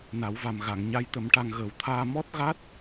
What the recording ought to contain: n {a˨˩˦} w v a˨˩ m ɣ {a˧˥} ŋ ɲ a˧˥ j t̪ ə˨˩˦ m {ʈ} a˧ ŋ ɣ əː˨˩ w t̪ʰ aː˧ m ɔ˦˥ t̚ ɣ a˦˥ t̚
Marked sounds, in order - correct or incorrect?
correct, incorrect, correct

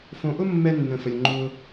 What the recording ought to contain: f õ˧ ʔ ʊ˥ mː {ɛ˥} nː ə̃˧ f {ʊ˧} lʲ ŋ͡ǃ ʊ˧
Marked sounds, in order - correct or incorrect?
correct, incorrect

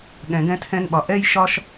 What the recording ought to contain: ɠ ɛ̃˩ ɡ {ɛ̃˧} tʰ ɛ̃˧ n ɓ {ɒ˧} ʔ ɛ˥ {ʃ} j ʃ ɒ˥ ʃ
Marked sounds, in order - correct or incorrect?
correct, incorrect, incorrect

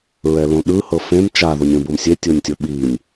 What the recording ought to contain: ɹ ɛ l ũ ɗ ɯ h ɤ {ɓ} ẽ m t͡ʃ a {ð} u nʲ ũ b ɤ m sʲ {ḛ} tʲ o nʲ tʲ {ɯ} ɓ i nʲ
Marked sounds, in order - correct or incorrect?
incorrect, correct, incorrect, incorrect

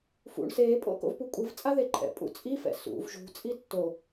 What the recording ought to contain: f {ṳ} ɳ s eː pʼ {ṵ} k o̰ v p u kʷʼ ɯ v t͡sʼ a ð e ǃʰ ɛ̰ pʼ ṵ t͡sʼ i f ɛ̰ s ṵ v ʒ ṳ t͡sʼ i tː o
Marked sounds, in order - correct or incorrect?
incorrect, incorrect

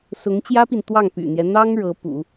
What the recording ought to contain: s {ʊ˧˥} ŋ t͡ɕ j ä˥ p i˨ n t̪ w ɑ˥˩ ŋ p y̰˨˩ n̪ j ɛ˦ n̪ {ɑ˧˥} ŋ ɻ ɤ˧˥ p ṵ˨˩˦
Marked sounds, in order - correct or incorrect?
correct, incorrect

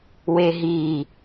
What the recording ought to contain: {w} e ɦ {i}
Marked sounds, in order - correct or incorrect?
correct, correct

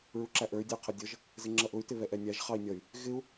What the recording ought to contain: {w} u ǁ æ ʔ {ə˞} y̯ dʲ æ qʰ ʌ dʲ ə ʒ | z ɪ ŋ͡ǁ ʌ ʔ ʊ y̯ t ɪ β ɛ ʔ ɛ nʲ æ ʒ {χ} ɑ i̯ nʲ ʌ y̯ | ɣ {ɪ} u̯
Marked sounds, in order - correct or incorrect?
incorrect, correct, correct, correct

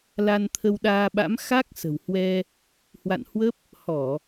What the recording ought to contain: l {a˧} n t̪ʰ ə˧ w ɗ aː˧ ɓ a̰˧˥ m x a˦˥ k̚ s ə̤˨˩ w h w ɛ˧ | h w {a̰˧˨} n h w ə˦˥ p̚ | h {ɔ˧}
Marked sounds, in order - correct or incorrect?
correct, correct, incorrect

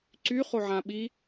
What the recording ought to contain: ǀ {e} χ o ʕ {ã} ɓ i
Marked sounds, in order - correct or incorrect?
incorrect, correct

